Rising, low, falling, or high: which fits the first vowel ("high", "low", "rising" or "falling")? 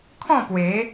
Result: falling